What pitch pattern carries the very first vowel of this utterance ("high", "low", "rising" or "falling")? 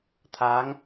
rising